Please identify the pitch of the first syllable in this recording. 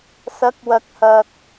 rising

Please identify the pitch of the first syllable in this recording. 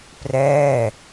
falling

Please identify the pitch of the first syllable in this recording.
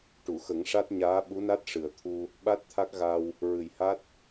low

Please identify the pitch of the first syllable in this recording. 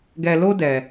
low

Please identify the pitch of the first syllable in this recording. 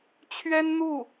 high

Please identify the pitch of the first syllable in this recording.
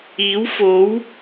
rising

